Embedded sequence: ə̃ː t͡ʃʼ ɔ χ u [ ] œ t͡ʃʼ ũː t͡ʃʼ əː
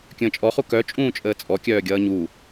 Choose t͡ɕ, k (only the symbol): k